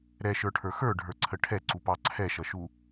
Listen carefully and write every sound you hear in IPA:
ɾɛʃə˞ʈʰə˞ xə˞ɖʱə˞ǀʰə ʈʰɛǀupɑ ǀʰɛʃʌʃu

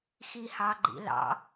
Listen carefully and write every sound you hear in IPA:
xihɑɡ͡ǃḭlɑ̰

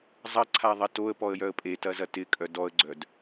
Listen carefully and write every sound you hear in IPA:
zˤɐǀʰaðˤɐ toə̯pɔə̯jœə̯ pʼetɐzɐ tɪkʼœ dɔə̯ɡ͡ǀœd

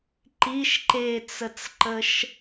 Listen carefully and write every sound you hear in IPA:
ǃiʃ ǃet͡sət͡sǃəʃ

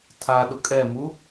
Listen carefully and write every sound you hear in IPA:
tʰa ɗʊkʼɛmu

